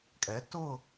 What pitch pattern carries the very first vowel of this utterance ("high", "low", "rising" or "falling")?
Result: rising